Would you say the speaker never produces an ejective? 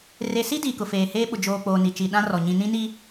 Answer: yes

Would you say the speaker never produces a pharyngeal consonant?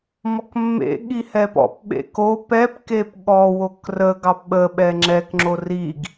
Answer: yes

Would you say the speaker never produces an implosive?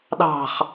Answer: no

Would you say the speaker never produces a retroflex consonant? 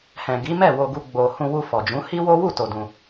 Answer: yes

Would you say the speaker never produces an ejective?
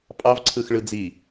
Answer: no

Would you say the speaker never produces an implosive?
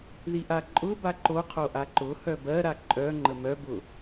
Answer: yes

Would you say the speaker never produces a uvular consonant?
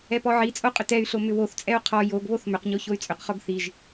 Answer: no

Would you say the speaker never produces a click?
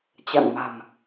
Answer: yes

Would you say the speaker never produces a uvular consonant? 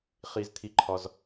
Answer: no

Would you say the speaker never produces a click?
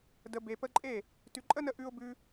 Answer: no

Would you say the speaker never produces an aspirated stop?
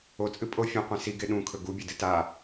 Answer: no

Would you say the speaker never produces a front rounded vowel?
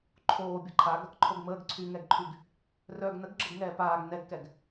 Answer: no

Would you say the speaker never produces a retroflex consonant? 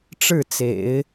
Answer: no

